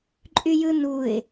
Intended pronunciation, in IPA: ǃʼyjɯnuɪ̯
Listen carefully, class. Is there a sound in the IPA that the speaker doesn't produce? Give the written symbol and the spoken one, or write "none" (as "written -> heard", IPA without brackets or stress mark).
none